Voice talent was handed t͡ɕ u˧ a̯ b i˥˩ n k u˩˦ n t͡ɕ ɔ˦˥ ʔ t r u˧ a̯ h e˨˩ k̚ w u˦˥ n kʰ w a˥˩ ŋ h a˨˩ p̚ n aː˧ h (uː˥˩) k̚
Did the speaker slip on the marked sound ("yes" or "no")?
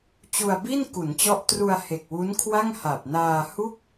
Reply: yes